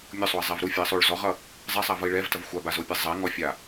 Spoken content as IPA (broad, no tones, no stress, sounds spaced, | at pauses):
mʲ o sˤ o i̯ zˤ ɛ v ɾ u fʲ o i̯ sˤ o ɭ z ɔ ʁ ʌ | zˤ ɛ sˤ a v ʌ i̯ ɭ ɛ v t ʌ v xʷ a b a z o pʲ a zˤ ɛ ŋ ɔ fʲ a